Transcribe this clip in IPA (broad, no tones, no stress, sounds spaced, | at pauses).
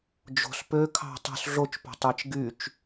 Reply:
d͡ʒ o̤ s p ø kʰ ɑ̤ tˤ o̤ s ɮ o t͡ʃ p o̤ tˤ æ t͡ʃ ɡ y t͡ʃ